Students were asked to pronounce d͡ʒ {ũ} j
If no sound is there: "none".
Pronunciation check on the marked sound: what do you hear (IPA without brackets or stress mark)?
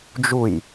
u